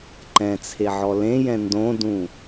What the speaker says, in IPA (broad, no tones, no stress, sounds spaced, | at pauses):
ǃ ɛ̃ t͡sʰ e ʕ ɔ l ẽ j ɛ̃ n d õ d ũ